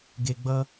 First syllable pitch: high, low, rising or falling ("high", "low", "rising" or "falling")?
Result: low